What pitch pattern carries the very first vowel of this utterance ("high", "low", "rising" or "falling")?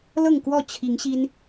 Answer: falling